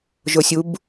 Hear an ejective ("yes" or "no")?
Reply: no